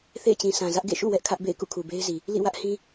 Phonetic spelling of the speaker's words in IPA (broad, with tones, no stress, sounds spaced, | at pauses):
θ ḛ˦˨ ɪ̯ t͡ɕ ĩ˨ sʰ ã˨ z ä˦ ʔ ɡ ḛ˦˨ ʃ ṵ˦˨ w ɛ˦ ʔ kʰ ä˦ ʔ b ḛ˦˨ ɪ̯ k ṵ˦˨ kʰ u˨ b e˦ ɪ̯ z i˨ | l ḭ˦˨ w ä˦ ʔ h ĩ˦